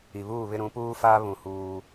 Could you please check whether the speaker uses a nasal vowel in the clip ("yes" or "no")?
yes